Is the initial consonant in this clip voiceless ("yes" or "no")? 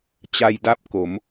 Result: yes